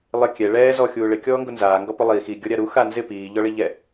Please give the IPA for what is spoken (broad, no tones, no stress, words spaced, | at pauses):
lˠɪ kʲɛ ɭɛː zɔ xʲuːɭɪ kʲɔːŋɡʊnzaː ŋɡɔpʊlˠiː xi ɡʲɔɾʲaɾu xanzɪ piː ʎɔɭiʎɛ